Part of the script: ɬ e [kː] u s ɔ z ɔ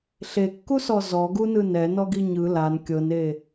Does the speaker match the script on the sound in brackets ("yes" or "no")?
yes